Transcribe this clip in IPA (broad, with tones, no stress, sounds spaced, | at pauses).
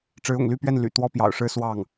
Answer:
ʈ͡ʂ ɻ̩˧˥ ʊ̰˨˩ ŋ l y˥˧ p ɥ ɛ˥˩ n l y̰˨˩ t̪ w ɔ˥ p j ɑ̰˨˩ ʊ̯ ʂ ɻ̩˥ s w ɑ˥˩ ŋ